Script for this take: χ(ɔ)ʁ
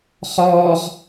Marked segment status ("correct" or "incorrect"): incorrect